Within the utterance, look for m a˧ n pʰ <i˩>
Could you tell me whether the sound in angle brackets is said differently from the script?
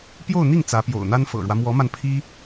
yes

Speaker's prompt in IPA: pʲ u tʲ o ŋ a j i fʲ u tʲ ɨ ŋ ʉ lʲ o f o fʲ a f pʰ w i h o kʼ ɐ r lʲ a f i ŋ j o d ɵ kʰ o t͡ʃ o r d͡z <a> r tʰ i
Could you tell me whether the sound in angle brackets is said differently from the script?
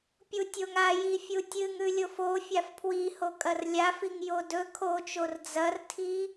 yes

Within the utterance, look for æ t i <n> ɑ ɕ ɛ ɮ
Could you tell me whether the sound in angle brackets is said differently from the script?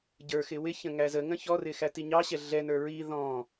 yes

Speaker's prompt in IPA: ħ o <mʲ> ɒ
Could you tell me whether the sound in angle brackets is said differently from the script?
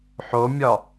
no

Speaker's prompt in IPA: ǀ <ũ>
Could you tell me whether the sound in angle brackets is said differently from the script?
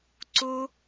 yes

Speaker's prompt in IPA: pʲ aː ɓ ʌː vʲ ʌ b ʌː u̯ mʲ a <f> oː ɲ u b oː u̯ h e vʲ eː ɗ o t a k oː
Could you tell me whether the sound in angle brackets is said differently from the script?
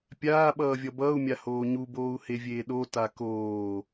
yes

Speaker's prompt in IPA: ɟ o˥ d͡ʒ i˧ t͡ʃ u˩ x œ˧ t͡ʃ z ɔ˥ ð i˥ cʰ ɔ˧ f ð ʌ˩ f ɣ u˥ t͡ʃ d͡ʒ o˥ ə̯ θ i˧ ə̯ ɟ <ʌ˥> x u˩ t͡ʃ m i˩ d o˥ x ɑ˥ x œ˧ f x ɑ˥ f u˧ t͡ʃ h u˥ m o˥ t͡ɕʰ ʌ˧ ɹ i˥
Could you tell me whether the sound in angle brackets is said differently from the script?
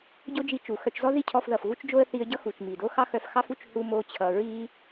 no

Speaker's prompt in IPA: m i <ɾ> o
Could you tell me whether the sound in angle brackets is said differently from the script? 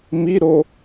no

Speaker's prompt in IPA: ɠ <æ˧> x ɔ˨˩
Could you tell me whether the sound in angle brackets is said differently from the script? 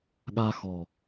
yes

